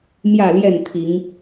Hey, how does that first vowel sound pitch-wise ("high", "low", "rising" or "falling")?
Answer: falling